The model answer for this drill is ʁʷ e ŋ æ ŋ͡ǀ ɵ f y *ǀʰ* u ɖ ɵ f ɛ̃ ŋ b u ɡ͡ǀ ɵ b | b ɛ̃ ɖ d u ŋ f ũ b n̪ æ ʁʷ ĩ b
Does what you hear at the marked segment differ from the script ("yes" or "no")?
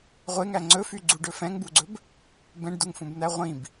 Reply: yes